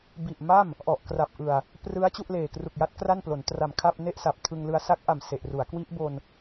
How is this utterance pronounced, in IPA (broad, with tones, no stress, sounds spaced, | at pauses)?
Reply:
b i˨˩ ʔ m a˥˩ m | ʔ ɔ˨˩ ʔ k r a˨˩ p̚ ʔ ɯ˨˩ a̯ | p r ɯ˦˥ a̯ t͡ɕ u˥˩ ʔ l eː˨˩ k r u˨˩ k̚ j a˦˥ t̚ k r a˥˩ n p l o˩˦ n t r a˨˩ m kʰ a˥˩ p̚ n e˥˩ ʔ s a˨˩ p̚ tʰ ɯ˧ ŋ l ɯ˧ a̯ s a˦˥ k̚ ʔ a˨˩ m s e˨˩ ʔ r u˩˦ a̯ k w i˦˥ ʔ b o˧ n